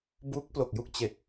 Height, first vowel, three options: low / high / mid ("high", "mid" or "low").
high